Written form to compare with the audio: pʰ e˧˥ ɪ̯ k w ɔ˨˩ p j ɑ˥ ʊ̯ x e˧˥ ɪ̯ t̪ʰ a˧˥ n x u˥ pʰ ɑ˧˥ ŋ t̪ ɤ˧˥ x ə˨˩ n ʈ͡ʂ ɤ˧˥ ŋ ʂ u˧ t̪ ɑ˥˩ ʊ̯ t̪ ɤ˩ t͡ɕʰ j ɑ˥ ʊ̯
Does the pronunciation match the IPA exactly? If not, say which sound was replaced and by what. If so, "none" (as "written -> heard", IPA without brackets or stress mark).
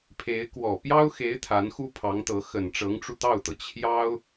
ʂ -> ʈ͡ʂ